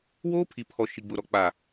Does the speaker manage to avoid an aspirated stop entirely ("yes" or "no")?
no